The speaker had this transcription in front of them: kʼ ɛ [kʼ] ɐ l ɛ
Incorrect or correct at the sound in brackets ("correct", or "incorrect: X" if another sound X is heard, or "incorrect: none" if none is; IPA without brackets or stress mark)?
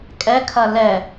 incorrect: kʰ